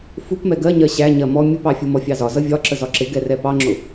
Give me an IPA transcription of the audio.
f u p m ɛ ɡ ɜ ɲ ɜ ɕ æ ɲ ɜ m ɔ mʲ ʊ p ɑ fʲ u m ɔ fʲ ɑ z ɒ z ʌ vʲ ɒ ǁ ə z ɒ ǁ ɪ ɡ ɛ r ɛ p ɑ ŋ͡ǁ ʊ

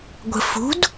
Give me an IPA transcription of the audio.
ɡʷ ə̤ f ṳ d

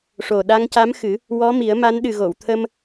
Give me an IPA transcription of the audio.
ʂ o˨˩ ɗ a˧ ŋ c a˧˥ m x ɨ˨˩˦ | w ɔ˧˥ m i˨˩˦ ə̯ m a˧˥ n ɗ ɨ˨˩ ɣ o˨˩˨ w t̪ʰ ə˧ m

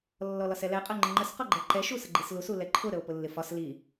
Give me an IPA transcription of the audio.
lː ɔ l ɒ s ɛ l ɛ qʼ ɜ ŋ͡ǃ ɪ ŋ͡ǃ ə s q ɔ ɡ͡ǃ ɜ ǃ ɛ ʃ u s ə ɡ͡ǃ i s l u s u l ɛ ǃʰ ʊ ɾ ə o̯ p ʊ lː ɪ f ɒ s l i

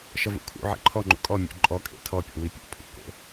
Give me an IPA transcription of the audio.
ʃ ʌ v ṵ kʰ ṵ ʕ ḛ ǃʰ ɔ ŋ͡ǃ ṵ kʼ ɔ mʲ o̰ ǃʼ ɔ kʼ ḛ tʰ ɔ pʲ ɔ̰ w i pʲ o̰ pʰ ṵ k o̰

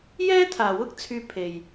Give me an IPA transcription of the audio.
j ɛː˥ t̪ʰ aː˨ w ʊ˥ k̚ t͡sʰ yː˧ pʰ e˨ j

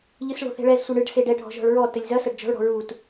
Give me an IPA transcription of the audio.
ʎ ɨ s ɭ o̤ θ ɛ̤ ɭ ɛ z sʷ ɐ ɳ ɨ ɖ s e ɖ ɛ ɖʱ ɔ̤ ʒ ɔ̤ ɭ ɹ ɔ t ɘ lʲ z ɐ s ɐ ɖ d͡ʒ ɔ̤ ɭ ɽ ɔ̤ ɹ u t

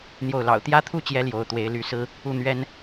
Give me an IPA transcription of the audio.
n̪ j o˥˩ ʊ̯ l ɑ̰˨˩ ʊ̯ t̪ j ä˥ t̪ʰ u˥ t͡ɕ j ɛ˧˥ l j o˧˥ ʊ̯ t̪ w e˧˥ ɪ̯ l y˧˥ s ɹ̩˥ | u˥˩ n̪ ɥ ɛ˥ n

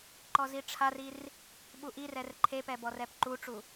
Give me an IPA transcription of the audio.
ǃ ɔ z i ʈ͡ʂʰ a r i r | ɓ u ʔ i r ɛ r ǃʰ e p ɛ b ɔ r ɛ p ǃ u ʈ͡ʂ u

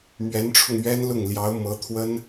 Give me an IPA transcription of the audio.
m ɥ ɛ˧˥ n ʈ͡ʂʰ ʊ˧ ŋ ɥ ɛ˥ n l ʊ˥˩ ŋ l j ɑ˧˥ ʊ̯ m ɤ˧˥ t̪ʰ w ə˥ n

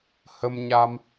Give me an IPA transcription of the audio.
h ə˧ m ɲ a˧ m

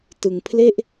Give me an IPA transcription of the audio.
t ɯ˧ ŋ pʰ l e˥˩ ʔ

